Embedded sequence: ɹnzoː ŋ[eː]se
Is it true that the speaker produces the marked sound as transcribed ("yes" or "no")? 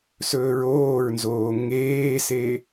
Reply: yes